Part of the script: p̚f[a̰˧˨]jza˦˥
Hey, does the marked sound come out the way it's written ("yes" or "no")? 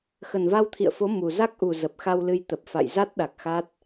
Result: yes